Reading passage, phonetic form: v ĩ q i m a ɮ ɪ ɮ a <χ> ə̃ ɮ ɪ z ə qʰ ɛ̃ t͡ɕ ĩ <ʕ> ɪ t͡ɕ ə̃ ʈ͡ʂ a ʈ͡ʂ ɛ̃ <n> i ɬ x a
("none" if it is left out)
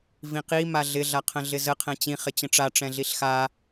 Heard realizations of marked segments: qʰ, χ, ɮ

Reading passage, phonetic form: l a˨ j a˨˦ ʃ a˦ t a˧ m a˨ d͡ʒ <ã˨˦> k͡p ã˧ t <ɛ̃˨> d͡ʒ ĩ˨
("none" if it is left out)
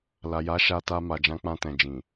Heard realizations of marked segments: ã˨˦, ɛ̃˨

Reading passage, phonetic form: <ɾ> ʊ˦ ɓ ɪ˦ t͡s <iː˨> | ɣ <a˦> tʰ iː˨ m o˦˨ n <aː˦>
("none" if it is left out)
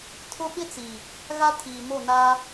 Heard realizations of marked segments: tʰ, iː˨, a˦, aː˦

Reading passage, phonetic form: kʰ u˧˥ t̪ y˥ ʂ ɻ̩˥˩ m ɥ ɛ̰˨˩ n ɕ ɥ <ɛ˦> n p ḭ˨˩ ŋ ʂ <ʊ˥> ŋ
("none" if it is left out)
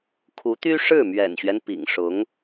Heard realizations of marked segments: ɛ˦, ʊ˧˥

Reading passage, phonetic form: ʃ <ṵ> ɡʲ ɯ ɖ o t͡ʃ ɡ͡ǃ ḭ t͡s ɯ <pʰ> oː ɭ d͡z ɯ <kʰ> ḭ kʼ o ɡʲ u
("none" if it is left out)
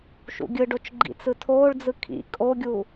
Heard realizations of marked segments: ṵ, tʰ, kʰ

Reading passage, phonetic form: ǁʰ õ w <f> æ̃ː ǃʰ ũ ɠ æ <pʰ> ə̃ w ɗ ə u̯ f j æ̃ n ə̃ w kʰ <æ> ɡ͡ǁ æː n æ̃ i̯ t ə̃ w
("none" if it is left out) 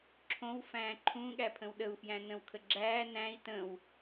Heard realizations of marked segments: f, pʰ, ə

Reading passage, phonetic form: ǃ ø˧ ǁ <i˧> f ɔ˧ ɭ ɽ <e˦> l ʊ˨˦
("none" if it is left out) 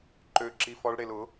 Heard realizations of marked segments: i˧, e˧

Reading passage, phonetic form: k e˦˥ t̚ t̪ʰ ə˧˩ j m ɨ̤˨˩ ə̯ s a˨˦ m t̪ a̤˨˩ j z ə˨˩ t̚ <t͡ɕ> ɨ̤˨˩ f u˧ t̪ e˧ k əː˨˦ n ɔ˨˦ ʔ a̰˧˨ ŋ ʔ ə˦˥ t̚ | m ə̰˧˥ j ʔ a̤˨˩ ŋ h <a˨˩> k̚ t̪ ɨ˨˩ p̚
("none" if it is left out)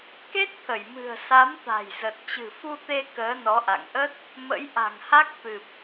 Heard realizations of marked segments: t͡ɕ, a˦˥

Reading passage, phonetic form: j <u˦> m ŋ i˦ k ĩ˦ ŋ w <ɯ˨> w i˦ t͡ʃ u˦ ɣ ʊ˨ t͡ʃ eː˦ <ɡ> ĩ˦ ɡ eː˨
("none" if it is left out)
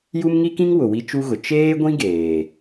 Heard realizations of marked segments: u˦, ʊ˨, ɡʷ

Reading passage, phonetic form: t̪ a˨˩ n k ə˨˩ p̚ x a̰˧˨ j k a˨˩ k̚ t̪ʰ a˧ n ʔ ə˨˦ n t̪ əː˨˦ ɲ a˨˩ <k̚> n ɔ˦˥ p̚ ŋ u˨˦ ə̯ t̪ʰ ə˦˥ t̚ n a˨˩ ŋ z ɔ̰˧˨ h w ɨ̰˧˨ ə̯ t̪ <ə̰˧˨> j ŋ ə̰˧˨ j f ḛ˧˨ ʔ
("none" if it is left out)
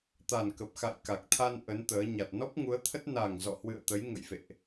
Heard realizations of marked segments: t̚, ə˨˦

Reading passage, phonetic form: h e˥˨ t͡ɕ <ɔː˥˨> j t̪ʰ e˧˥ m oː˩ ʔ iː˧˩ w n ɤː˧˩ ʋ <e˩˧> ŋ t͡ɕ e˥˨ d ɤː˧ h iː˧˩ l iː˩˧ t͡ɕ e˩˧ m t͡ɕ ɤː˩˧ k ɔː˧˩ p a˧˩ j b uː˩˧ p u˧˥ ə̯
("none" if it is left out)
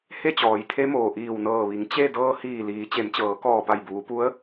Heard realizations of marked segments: ɔː˩˧, i˩˧

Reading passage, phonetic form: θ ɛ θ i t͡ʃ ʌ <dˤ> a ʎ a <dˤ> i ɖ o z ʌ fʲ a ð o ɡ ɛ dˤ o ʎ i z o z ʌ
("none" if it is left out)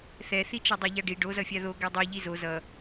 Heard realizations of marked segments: dˤ, ɖ

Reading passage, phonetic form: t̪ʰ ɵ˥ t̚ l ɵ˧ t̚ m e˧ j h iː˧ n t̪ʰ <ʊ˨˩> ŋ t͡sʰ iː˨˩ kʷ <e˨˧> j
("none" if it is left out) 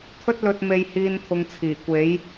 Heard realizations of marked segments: ʊ˧, e˨˧

